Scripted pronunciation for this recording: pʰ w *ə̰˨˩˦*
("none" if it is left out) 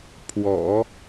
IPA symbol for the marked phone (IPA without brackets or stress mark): ɔ̰˨˩˦